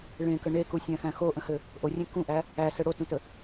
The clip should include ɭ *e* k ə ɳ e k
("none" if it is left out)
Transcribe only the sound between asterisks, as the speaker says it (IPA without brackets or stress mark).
ẽ